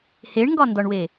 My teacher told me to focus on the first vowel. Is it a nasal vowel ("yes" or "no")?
no